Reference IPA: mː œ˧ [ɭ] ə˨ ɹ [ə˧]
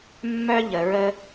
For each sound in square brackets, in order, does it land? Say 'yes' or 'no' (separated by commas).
no, yes